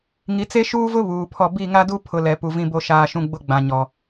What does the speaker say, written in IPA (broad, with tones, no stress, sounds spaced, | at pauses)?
ŋ i˨ t͡s e˦ ʃ uː˦ v ʊ˦ β uː˨ pʰ ɔ˦˨ b i˦˨ ŋ a˦ d u˦ pʰ ʊ˨ l ɛ˨ p u˨ v ĩ˦ b o˦ ʃ aː˦ ʃ ũ˦ ɡ͡b ʊ˦ ɡ͡b ã˨ ɲ ɔ˨